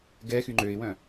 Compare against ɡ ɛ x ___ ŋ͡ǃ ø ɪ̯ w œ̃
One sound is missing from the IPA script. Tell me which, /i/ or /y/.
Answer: y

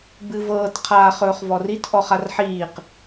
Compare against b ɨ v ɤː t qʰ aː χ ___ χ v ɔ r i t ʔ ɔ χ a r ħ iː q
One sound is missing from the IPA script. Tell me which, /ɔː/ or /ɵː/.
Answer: ɵː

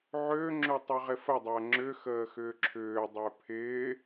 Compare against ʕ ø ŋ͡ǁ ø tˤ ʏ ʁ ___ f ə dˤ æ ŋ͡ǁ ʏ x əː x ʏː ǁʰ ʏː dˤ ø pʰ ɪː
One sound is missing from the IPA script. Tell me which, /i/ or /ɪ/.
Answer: ɪ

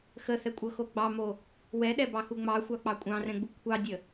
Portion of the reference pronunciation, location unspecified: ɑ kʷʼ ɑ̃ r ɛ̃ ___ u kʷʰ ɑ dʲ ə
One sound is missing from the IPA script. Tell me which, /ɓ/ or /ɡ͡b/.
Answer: ɡ͡b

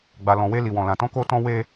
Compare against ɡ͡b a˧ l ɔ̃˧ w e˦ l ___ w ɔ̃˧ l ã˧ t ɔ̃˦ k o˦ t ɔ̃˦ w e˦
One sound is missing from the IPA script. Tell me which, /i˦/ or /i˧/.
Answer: i˧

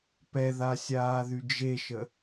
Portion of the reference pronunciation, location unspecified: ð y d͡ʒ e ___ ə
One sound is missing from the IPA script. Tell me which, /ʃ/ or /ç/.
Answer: ʃ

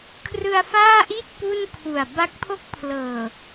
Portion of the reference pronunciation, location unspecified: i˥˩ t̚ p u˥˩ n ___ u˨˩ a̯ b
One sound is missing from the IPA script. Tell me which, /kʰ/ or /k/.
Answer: kʰ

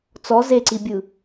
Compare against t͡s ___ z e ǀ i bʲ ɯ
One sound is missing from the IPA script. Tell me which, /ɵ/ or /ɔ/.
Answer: ɔ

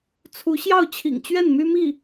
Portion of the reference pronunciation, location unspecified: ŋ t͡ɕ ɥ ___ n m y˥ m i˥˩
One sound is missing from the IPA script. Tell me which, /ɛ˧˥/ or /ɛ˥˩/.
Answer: ɛ˥˩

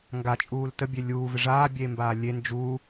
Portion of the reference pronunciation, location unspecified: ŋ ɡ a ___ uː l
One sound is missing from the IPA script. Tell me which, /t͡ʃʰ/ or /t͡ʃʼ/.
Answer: t͡ʃʼ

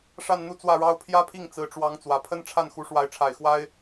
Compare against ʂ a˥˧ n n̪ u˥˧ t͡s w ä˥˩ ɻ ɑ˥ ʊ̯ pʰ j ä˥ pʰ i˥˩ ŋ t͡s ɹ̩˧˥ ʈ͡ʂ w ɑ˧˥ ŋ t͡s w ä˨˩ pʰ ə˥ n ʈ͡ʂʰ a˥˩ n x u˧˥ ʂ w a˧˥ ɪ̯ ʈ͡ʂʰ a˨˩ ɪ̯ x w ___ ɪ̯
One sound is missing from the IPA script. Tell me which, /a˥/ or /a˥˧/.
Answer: a˥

